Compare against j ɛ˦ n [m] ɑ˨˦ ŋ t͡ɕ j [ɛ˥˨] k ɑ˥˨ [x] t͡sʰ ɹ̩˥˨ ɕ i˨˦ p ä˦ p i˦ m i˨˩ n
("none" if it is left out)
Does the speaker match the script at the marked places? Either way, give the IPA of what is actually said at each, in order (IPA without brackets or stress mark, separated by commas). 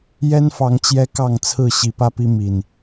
f, ɛ˦, ŋ